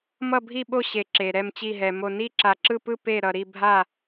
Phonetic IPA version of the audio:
m ʌ˥˧ bʱ i˥˧ ɓ o˥˧ ɕ e˧ ǁ e˧ ɾ ɛ˥˧ m t͡ɕ i˥˧ ɦ ɛ˧ m o˥˧ n i˥˧ ǁ a˧ ǁ ɯ˥˧ p ɯ˥˧ p e˥˧ ɾ ʌ˧ ɾ i˥˧ bʱ a˥˧

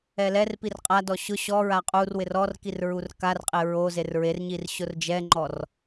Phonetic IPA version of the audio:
ɛ l ɛ r p i r qʼ a d ɔ ɕ ʊ ɕ ɔ ɹ a qʼ u r w ɪ r ɔ r k i r ɹ u r k a r qʼ ɪ ɹ o z e r ɹ e r ɲ i r ɕ ʊ r d͡ʒ ɛ ŋ͡ǃ ɔ r

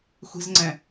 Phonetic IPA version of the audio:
xʷ i̤ z ŋ͡ǀ ɛ̃

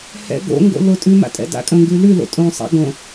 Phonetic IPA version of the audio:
h ɛ̰ ɡ o̰ ŋ ɡ o̰ l o tʼ ʉ m a̰ tʼ ɛ̰ d a̰ kʼ ə̃ ŋ ɡ ʉ l ʉ l o̰ tʼ õ sˤ a̰ ɡ õ

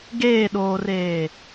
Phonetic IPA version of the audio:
ɡ eː ɗ oː r eː

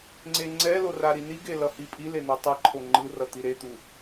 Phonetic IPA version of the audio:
ŋ͡ǀ e ŋ͡ǀ ɛ l o r a ɾ i n i ɡ e l ʌ h i pʼ i l e n̪ a tˤ ʌ ǃʰ o ŋ͡ǃ ɯ r ʌ t̪ i ɾ e t̪ u

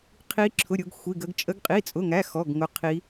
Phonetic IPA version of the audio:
qʰ i˦˥ ǁʰ ʊ˧˥˧ ɾʲ ʊ˦˥ ɡ xʷ i˧˥˧ ɡ ə˦˥ ɡ t͡ʃʼ ə˦˥ ɡ qʼ i˧˥˧ t͡sʼ ʊ˧˥˧ ŋ æ˧˥˧ x ɔ˧˥˧ ɡ ŋ ʊ˦˥ qʰ i˦˥

